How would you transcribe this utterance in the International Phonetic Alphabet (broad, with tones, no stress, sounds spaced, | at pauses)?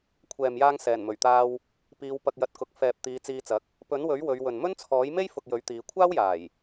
kʷʰ ɛː˨ m j aː˧ ŋ s ɛː˨˩ n m ɵ˨˩ ɥ t̪ aː˧ w | p iː˨˧ w p ɐ˧ k̚ j ɐ˧ t̚ k ʊ˨˥ k̚ f ɛː˨ p̚ t̪ iː˨˧ t͡s iː˧ t͡s ɐ˨˥ k̚ | p ɵ˨˥ n w ɵ˨˥ ɥ w ɵ˨˧ ɥ w ɵ˨ n m ɵ˥ n t͡sʰ ɔː˨˥ j m e˥ j f ʊ˨ k̚ j ɵ˨˥ ɥ t̪ iː˨˧ kʷʰ aː˥ w j aː˨˩ j